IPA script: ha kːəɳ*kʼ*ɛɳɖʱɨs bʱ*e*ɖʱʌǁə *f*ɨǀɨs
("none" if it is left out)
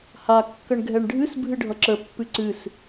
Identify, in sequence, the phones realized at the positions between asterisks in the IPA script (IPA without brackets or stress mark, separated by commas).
ɡʱ, ɨ, pː